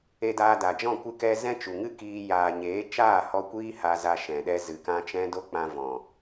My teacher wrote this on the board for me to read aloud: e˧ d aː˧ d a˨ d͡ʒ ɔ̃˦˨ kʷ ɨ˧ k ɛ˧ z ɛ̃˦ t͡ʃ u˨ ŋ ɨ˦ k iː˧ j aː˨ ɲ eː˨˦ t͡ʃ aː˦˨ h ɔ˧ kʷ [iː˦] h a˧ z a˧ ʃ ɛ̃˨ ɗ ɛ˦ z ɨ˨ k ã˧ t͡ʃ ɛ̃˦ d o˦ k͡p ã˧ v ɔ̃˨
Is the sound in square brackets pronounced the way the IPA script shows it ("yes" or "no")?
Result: yes